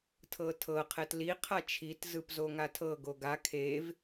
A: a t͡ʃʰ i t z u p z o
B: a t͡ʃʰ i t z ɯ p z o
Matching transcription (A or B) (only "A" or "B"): B